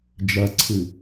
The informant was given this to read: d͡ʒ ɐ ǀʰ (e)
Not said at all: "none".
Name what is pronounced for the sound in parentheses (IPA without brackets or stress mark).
ɨ